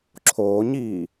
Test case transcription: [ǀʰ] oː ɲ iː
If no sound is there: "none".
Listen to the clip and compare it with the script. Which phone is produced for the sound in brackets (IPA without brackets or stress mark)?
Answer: ǁʰ